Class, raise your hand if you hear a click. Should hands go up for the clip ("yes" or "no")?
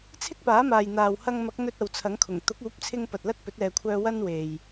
no